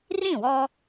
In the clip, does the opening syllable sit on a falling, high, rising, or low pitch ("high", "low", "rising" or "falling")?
falling